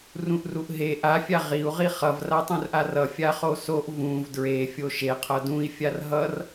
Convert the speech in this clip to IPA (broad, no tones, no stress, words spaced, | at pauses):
rũʔruʔɦe ʔa fʲaʁiu̯ ʁiχʌv ratˤũrʔarʌ fʲaχosoʔ vũv dɹe fʲoʃe qʰʌdũi̯ fʲarɦʌr